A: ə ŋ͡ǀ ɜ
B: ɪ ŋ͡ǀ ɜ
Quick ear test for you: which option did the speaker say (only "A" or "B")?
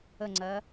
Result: A